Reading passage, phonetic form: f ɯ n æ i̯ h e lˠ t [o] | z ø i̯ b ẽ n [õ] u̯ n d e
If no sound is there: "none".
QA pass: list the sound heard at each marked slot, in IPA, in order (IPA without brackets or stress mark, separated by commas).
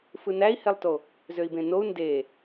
o, o